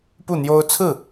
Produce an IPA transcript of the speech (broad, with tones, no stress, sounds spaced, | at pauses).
p u˥˩ n̪ j o˥ ʊ̯ t͡sʰ ɹ̩˥˩